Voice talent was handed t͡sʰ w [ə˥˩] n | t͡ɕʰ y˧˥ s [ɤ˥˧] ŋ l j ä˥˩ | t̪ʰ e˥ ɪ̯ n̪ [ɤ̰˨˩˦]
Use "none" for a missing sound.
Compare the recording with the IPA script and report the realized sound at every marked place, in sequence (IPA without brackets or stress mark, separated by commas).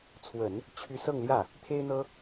ə˨˩˦, ɤ˥˧, ɤ˥